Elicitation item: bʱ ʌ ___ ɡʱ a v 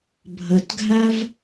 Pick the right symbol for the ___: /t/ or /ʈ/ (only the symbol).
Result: t